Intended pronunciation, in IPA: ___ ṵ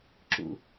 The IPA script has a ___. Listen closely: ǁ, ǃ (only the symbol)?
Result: ǁ